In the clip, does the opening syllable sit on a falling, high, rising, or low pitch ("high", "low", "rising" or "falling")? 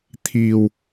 low